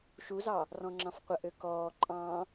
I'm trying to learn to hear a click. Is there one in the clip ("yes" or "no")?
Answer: yes